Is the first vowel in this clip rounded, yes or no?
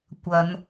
no